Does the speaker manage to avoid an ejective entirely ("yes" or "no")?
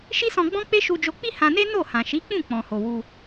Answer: yes